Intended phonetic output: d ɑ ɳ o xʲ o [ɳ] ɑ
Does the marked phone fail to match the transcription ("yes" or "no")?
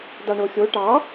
yes